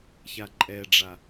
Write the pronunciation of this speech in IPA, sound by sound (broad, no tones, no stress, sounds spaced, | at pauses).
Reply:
ç a ǃʼ ɛ ɖ͡ʐ a